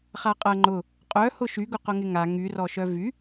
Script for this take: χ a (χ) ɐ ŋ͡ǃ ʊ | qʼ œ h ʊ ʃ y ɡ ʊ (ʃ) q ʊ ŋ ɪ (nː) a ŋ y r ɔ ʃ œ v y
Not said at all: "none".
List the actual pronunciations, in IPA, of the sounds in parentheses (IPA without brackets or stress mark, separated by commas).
qʼ, none, ŋ